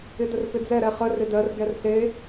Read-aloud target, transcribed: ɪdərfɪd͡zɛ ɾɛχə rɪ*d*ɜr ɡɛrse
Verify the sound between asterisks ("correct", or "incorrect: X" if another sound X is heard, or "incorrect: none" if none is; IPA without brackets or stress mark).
correct